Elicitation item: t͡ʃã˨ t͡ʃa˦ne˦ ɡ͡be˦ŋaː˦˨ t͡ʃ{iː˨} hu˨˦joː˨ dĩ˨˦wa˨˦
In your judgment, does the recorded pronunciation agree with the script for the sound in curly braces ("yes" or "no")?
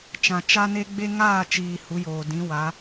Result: yes